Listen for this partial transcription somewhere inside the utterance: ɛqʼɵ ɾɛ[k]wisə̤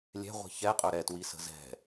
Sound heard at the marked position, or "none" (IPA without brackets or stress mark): t